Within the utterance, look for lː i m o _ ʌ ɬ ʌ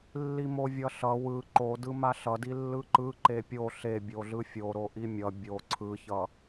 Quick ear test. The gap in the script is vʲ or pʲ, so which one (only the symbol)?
vʲ